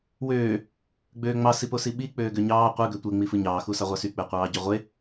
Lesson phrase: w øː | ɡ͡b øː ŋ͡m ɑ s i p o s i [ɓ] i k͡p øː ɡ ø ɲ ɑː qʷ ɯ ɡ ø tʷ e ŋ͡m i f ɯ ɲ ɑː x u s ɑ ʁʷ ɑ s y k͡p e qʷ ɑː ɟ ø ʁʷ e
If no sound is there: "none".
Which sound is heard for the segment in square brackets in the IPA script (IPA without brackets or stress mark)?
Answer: ɓ